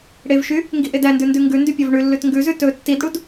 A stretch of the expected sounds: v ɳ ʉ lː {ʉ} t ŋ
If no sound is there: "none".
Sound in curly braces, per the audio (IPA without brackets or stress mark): ʉ